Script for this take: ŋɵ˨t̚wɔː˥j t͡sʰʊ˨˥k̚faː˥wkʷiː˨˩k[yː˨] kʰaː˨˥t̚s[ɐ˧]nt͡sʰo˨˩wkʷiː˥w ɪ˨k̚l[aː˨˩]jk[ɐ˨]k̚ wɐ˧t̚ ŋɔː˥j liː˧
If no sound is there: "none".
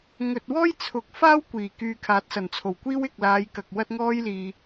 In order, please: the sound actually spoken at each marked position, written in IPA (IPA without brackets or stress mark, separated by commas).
yː˨, ɐ˨˩, aː˨˧, ɐ˨